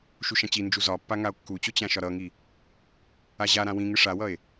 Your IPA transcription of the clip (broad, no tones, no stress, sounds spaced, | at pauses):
ʃ u ʃ ã t͡ɕ i n d͡ʒ u z ɒ pː a ŋ a o̯ kː u t͡ɕ o t͡ɕ ã ʃ ɒ ɾ ʌ ŋ i | a ʑ a ɾ ã w ĩ ŋ ɨ ʂ a w ʌ e̯